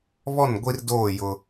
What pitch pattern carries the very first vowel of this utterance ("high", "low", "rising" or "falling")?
falling